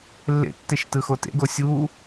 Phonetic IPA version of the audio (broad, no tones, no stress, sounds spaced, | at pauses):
lː ḛ tː e ʃ t ɯ x o t ḛ ɡ o sʲ u